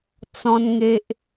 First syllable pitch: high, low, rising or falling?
high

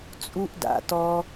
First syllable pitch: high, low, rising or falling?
high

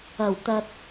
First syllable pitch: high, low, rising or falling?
low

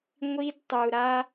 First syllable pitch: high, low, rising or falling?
high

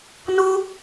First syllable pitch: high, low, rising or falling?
high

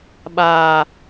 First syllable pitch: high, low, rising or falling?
low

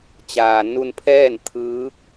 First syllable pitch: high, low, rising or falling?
low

